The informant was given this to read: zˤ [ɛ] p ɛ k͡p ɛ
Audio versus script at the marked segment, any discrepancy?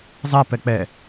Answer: no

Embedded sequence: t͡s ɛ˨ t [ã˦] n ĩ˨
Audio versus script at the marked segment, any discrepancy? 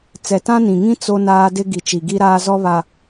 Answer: no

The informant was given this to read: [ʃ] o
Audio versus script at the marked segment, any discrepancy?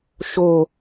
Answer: no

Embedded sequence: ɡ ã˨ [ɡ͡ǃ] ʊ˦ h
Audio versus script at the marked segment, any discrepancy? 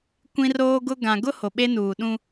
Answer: yes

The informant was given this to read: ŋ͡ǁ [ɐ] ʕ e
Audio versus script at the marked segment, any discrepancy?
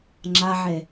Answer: yes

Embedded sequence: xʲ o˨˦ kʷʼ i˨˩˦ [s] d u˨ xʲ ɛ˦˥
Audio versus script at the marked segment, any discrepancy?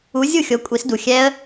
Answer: no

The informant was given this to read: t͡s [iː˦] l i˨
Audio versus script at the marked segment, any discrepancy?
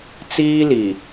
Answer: no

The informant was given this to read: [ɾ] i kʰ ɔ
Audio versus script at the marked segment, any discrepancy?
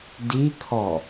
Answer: yes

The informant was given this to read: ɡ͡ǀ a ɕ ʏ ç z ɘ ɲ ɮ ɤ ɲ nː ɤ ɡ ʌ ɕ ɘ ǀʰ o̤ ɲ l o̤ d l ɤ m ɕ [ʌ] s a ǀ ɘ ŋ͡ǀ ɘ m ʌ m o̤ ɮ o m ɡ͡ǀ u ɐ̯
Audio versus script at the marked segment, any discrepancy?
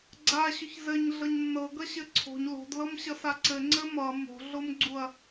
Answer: no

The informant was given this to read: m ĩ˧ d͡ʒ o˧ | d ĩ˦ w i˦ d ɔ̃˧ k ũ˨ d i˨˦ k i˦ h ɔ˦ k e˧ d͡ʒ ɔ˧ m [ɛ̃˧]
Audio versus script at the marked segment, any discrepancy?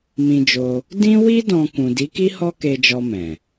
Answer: yes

